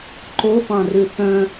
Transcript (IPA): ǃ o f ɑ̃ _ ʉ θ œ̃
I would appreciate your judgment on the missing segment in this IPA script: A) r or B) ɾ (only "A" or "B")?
A